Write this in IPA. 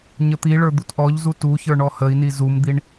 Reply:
ɲ ə t̪ i ɭ ə˞ d̪ u t ʔ ɔ ʎ z u t u ç ə˞ ɳ ɔ h ə i̯ n i z u m d̪ i ɳ

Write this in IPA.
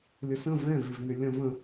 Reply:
lʲ ə s ə̃ v ɛ̃ v ɪ v n ʏ lʲ ɐ̃ v ə̃

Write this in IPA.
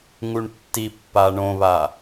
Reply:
ŋ u ɳ tː i pː a ɳ õ β a

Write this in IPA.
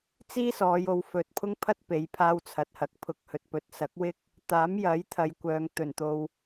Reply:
t͡s iː˥ s ɔː˨˧ j o˨˧ w f ɵ˨ t̚ pʰ ʊ˥ ŋ pʰ ɐ˥ t̚ p e˨˥ j pʰ aː˥ w t͡sʰ ɐ˨ t̚ h ɐ˧ k̚ pʰ ʊ˧ k̚ h ɵ˧ t̚ p ɵ˨ t̚ s ɐ˨˥ k̚ w ɪ˥ k̚ | t̪ aː˨˥ m j ɐ˨˥ j t̪ʰ ɐ˨ j kʷ œː˨ ŋ t̪ ɵ˨˩ n t̪ o˨ w

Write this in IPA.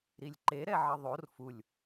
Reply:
ɾ i lʲ ǃ e ɾ ɛ ʕ ʌ ðˤ o r f u lʲ

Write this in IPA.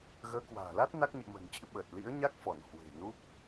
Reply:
ɣ əː˨˦ k w a̤ː˨˩ l a˦˥ t̚ n a˦˥ k̚ ɲ ɨ̰˧˨ m ə̤˨˩ n t͡ɕ ɨ̰˧˥ ɓ əː˨˩ t̚ l ḭ˧˥ ə̯ ɲ a˦˥ k̚ f ɔ˧˩ n h w e̤˨˩ n u˦˥ k̚

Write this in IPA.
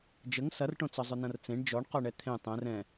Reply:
d͡ʒ ə ŋ s ɐ r ʈ õ t͡s ɔ zˤ ʏ n ɐ̃ r t͡s ẽ ɳ d͡ʒ ɔ ɳ q ɔ ɳ ɛ t̪ʰ ẽ tˤ ɛ̃ r ɛ̃

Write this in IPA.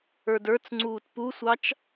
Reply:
ə˞ d ə˞ t͡s ŋ͡ǀ uː t p u sʷ ɑ t͡ʃ

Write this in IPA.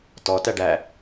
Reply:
t ɔ t æ ɖ æ

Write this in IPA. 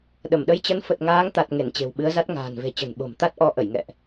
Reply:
ɗ ə˧˩ m ɗ ə˨˦ j t͡ɕ ə˨˦ n f ə˨˩ t̚ ŋ aː˨˦ ŋ t̪ a˨˩ t̚ ŋ e˧˩ n t͡ɕ e̤˨˩ w ɓ ɨ˨˦ ə̯ z a˦˥ t̚ ŋ a̤ː˨˩ n v e̤˨˩ t͡ɕ ə̤˨˩ n ɓ o̤˨˩ m t̪ a˦˥ t̚ ʔ ɔ˧ ʔ ə˧˩ j ŋ ɛ̰˧˨ ʔ

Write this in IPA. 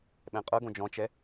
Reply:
ɓ ɛ̃ qʼ ɤ ɡ õ d͡ʒ ɔ̃ t͡ʃ ɛ

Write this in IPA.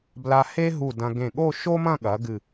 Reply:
b l a˧ h e˥ ɦ u˧˩ d ɐ̃˧ ɡ ẽ˧˩ ɠ o˥˧ ʃ o˥ m ɐ̃˥˧ ɠ ɐ˩˧ ɡ ɨ˧˩

